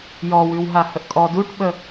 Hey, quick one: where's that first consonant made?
palate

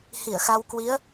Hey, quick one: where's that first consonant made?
throat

